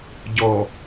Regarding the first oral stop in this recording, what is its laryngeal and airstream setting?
plain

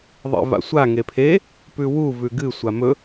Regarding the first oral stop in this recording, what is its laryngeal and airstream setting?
aspirated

